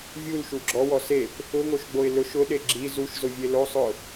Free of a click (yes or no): no